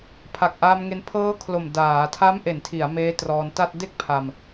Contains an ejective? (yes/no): no